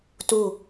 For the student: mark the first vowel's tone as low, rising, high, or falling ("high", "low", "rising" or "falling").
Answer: falling